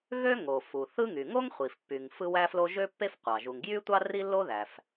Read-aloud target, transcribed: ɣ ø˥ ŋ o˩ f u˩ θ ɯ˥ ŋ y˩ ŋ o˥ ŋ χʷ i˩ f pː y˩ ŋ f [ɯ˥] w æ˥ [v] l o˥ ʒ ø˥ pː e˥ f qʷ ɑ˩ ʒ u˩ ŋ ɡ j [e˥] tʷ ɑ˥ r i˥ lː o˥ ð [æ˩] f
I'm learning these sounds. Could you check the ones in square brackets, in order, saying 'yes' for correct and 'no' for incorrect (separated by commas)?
yes, no, no, yes